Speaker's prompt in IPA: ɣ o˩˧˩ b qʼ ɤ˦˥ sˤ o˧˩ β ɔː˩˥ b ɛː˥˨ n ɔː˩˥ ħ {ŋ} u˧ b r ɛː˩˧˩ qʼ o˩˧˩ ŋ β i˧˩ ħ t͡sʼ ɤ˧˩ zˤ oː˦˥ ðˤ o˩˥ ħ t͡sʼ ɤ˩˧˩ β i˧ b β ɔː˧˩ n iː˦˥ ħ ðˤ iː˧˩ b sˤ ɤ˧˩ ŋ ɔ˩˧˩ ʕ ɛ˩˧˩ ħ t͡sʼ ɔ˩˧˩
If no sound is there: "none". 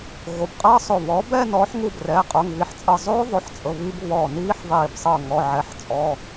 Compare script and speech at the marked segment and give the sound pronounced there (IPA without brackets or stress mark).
ŋ